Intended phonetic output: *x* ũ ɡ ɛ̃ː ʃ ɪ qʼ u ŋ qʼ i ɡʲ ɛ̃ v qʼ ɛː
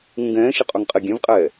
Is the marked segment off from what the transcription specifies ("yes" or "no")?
yes